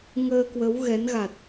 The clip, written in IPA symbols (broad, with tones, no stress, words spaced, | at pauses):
ŋəː˧kwə˨˦wɣɛ˨˦nɣa˨˩t̚